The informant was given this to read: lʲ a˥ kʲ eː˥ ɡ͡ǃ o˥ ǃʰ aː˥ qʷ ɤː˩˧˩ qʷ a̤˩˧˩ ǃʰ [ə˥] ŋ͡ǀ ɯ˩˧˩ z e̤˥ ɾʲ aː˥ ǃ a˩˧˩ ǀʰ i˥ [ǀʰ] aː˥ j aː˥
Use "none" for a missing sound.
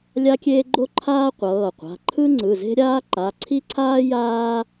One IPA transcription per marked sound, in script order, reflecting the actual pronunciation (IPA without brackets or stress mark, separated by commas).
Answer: ɯ˥, ǀʰ